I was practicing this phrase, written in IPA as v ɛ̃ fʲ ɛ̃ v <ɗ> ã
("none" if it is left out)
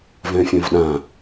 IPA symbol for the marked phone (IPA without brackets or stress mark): ɗ